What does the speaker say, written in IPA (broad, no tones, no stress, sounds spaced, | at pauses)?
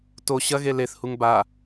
t o ɕ ɐ ɣ e l e θ h u ŋ b a